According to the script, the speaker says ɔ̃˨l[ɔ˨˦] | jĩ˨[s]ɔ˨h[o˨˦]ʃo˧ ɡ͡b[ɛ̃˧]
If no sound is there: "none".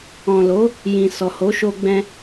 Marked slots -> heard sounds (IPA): o˨˦, s, o˨˦, ɛ̃˧

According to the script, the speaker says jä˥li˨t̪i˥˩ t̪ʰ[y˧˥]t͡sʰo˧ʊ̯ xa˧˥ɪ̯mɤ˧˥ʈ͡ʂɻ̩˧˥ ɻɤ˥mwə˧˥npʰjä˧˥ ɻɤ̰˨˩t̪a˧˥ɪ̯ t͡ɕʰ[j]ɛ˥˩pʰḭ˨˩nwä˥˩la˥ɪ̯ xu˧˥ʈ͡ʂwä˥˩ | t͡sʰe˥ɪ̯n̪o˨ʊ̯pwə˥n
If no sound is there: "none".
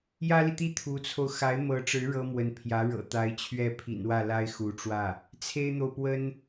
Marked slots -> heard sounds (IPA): u˧˥, ɥ

